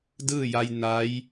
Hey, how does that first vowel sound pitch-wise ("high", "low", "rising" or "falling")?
falling